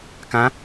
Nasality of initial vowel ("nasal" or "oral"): nasal